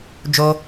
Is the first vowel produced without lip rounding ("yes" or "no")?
no